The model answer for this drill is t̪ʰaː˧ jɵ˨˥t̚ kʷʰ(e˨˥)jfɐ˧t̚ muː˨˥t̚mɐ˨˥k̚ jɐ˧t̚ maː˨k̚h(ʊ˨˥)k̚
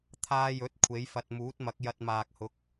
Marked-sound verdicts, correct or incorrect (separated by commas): correct, correct